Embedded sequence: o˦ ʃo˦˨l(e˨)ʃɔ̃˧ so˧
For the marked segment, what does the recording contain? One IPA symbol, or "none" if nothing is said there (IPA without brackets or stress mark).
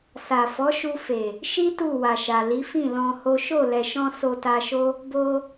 ɛ˨